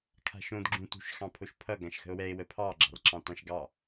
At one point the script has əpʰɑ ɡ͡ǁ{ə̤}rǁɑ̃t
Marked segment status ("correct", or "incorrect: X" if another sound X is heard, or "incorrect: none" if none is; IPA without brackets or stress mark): incorrect: ɑ̤